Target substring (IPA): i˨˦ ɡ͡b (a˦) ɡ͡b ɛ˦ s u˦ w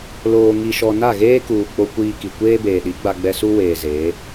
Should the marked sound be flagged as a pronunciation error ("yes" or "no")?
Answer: no